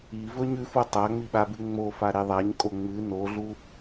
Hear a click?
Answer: no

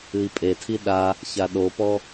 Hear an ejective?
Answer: yes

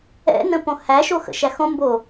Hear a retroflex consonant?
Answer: no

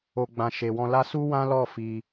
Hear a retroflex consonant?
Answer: no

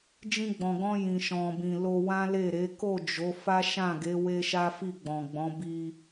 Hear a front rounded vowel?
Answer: no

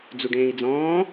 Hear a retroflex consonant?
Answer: yes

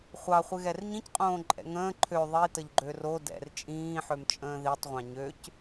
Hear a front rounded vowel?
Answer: yes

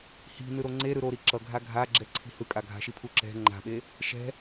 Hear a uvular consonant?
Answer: no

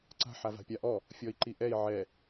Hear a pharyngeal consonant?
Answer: yes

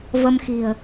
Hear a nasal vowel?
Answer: no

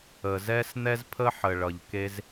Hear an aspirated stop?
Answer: yes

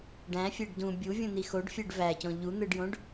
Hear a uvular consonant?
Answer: no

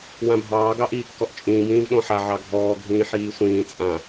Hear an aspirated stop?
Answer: no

